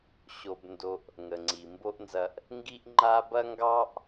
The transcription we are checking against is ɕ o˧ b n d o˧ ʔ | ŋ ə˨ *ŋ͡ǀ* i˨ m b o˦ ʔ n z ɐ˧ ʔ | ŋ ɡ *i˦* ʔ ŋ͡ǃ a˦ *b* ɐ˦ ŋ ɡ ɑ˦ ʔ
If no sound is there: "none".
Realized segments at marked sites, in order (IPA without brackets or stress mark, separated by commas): ŋ͡ǀ, i˦, b